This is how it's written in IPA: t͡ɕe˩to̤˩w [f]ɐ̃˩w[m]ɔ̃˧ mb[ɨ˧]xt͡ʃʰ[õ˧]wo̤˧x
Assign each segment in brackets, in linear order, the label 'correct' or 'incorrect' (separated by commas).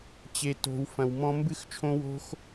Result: correct, correct, correct, correct